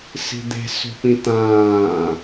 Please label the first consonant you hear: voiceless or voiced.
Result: voiceless